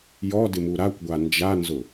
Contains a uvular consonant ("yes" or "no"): no